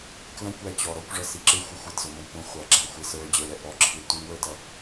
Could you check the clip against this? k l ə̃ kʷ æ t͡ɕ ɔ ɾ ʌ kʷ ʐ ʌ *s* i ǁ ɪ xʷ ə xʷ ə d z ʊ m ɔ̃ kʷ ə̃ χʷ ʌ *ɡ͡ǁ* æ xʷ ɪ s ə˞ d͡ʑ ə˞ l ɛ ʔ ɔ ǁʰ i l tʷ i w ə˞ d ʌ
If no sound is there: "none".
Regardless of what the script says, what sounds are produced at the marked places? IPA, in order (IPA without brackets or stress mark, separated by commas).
s, ɡ͡ǁ